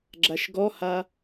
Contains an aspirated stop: no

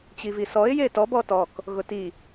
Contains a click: no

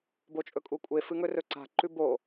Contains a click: yes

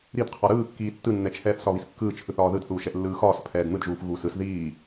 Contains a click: no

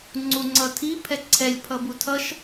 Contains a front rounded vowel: no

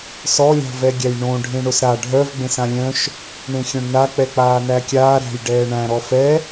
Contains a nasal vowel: yes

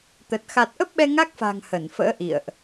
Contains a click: no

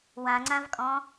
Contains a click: yes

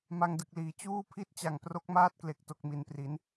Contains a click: no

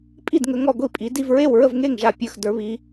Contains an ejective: yes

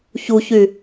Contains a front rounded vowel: yes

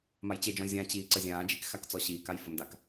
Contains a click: yes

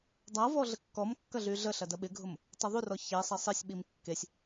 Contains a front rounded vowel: yes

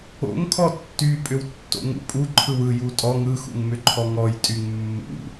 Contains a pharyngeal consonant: no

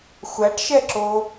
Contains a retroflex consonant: yes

